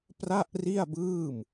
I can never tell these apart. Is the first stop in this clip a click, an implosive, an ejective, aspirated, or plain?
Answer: plain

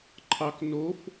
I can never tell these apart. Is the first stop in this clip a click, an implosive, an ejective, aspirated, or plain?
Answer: click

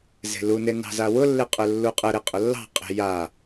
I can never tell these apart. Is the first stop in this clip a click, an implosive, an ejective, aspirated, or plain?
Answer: ejective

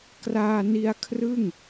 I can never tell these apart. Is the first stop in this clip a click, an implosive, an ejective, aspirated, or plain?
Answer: plain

